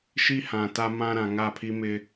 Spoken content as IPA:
ʃ i˦ h ã˨ t a˦ m ã˦ ɾ ã˨ ŋ a˦˨ pʰ i˦ m ɪ˦

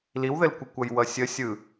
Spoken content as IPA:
l i w ð ɘ l kʷ ɘ kʷ ʌ j w ʌ sʲ ə sʲ ɯ

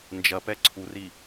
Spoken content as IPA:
n d͡ʒ ɐ p ɛ ǀʰ u r i

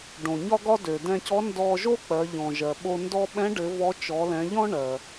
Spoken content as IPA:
ɖ õ˩ ɲ ɒ˥ ɡ ɒ˥ d ø˩ d ɛ̃˧ c ɔ˧˥ n d ɔ˧ ʒ o˥ k͡p ɜ˩˧ ʎ ɔ̃˩ ʒ ɜ˩ ɓ o˧ n d ɔ˥ ɓ ɛ̃˧˥ ɖ ɘ˩˧ v ɔ˧˥ t͡ʃ ɔ˩˧ l ɛ̃˩˧ ʎ ɔ̃˥ ɳ ɜ˩

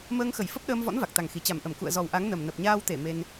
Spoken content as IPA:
m əː˧ ŋ x ə˧˩ j f ə˦˥ p̚ ɗ əː˧ m v ɔ̰˧˥ n v a˨˩ k̚ t̪ a˨˩ ŋ x i˨˩ t͡ɕ a˧˩ m ʔ ə˧˩ m k ṵ˧˨ ə̯ z ɔ˨˩ w ʔ a˨˦ ŋ n ə˨˩ m n ə˨˩ p̚ ɲ aː˧ w t̪ e˧˩ m e˧ n

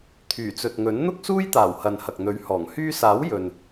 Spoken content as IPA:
t̪ʰ yː˨˩ t͡s ɵ˨ t̚ ŋ ɵ˨˥ n n̪ ʊ˥ k̚ s uː˥ j t̪ aː˨˩ w h ɐ˨ n h ɐ˨ k̚ n̪ ɵ˨˥ ɥ h ɔː˨˩ ŋ h yː˧ s aː˨˥ w j ɵ˨ n

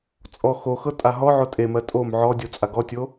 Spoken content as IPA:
t͡sʼ ɔ x o x ɤ tʼ a ɦ ɔ ʕ o tʼ e m ɜ tʼ o m ʕ ɔ dʲ o t͡sʼ a ɡ ɔ tʲ o

